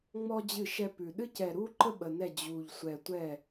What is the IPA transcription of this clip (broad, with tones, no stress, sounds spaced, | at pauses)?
ŋ͡m ɔ˥ d͡ʑ ɨ˥˩ ʃ ɛ˥ p ʉ˧˩ ɗ ɨ˥ c ɛ˧˩ ɾ u˥ ǃ ə˥ ɓ ə˧˩ n ɛ˥˩ d͡ʑ u˧˩ ʎ sʷ ɛ˧˩ tʷ ɛ˥˩